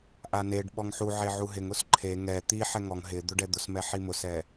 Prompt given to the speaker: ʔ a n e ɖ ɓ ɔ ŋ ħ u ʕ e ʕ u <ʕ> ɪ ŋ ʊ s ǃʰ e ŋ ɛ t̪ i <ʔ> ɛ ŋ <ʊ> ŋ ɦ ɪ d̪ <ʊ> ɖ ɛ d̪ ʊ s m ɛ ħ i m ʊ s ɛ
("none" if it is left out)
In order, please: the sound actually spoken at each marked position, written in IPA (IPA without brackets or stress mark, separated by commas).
ɦ, ħ, ɔ, ʊ